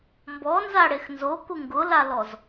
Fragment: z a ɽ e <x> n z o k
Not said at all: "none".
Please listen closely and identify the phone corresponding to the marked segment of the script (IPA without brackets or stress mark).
x